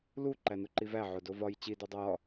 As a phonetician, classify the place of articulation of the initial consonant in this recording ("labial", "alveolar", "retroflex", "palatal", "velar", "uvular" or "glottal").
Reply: alveolar